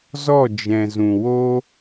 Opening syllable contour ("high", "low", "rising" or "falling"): falling